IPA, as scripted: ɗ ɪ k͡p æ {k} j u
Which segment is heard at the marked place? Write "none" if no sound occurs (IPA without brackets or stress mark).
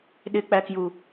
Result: k